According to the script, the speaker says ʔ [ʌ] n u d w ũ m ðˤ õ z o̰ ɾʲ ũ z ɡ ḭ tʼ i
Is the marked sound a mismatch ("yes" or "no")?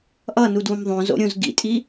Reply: no